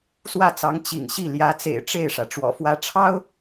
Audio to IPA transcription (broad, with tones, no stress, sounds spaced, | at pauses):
s w ä˥˩ t͡s ɑ˧˥ ŋ t͡ɕ ḭ˨˩ ŋ ɕ i˥˩ l j ä˧˥ t͡s ḛ˨˩ ɪ̯ ʈ͡ʂ e˥˩ ɪ̯ ʂ ä˩ ʈ͡ʂ w ɔ̰˨˩ f w ä˥ ʈ͡ʂʰ ɑ˥ ʊ̯